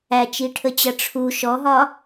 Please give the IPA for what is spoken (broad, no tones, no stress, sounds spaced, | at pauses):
æ t͡ʃ i ʈʰ ə t͡ɕ ʌ ʈ͡ʂʰ u ʃ ɔ ɦ ɒ